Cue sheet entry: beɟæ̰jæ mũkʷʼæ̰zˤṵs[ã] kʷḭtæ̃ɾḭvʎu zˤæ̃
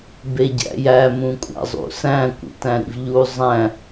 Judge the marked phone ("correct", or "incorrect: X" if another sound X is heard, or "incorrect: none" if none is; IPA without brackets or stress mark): incorrect: æ̃